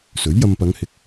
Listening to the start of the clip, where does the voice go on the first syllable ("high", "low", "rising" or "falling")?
rising